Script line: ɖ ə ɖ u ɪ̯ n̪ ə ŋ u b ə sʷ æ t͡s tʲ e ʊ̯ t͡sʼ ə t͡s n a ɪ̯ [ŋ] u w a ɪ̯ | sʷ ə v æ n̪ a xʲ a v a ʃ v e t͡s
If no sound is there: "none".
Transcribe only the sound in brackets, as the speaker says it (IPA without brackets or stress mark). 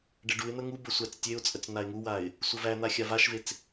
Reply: ŋ